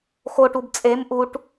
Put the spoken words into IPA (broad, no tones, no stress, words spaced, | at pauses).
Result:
xoʈub t͡sʼem ʔuʈ